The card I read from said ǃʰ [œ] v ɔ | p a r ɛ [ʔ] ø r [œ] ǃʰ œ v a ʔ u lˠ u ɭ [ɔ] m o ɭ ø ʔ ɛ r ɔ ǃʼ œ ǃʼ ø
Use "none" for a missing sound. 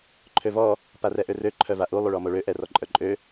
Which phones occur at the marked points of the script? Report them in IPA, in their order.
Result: ø, ʔ, ø, ɔ

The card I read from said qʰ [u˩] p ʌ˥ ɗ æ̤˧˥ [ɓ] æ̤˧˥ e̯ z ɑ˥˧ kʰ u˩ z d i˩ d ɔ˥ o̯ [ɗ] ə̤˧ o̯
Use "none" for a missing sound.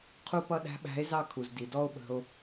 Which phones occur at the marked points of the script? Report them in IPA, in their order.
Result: u˥, ɓ, ɓ

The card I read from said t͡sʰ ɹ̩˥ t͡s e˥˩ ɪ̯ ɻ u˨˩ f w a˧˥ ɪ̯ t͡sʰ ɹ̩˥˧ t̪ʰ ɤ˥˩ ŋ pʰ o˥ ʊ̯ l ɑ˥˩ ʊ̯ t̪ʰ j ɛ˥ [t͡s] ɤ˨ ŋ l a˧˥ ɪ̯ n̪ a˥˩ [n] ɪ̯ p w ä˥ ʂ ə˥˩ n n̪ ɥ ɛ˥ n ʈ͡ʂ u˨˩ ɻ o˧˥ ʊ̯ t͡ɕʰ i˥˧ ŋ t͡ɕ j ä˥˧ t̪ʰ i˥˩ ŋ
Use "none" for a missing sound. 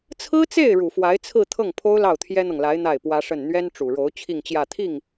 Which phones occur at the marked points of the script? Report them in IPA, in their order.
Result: n̪, none

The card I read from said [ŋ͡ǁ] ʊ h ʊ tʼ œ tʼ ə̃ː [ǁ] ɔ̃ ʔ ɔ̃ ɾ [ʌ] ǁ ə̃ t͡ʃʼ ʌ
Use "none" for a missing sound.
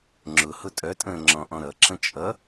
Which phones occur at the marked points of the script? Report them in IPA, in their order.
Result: ŋ͡ǁ, ŋ͡ǁ, ʌ

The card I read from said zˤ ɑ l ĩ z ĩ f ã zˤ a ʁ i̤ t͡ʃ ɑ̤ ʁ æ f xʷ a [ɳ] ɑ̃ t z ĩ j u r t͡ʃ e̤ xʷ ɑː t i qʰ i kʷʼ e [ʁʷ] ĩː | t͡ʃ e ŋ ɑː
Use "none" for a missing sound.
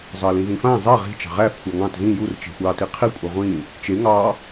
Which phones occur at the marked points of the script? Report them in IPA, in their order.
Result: ŋ, ʁʷ

